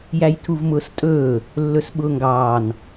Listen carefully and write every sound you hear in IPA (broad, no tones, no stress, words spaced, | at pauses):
jæjtʰuvmʊːstʼɵː | lːɵsɓʊːŋɡɑːn